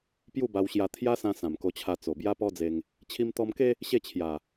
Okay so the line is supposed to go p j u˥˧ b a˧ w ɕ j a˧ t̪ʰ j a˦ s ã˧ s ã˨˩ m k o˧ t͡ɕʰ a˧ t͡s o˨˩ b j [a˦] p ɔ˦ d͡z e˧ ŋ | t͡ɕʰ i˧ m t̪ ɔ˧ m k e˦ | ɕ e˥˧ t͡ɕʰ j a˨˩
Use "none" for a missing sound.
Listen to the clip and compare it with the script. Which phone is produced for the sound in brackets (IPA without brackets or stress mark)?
a˦